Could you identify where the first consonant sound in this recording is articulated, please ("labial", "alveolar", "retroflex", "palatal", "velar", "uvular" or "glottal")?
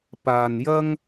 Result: labial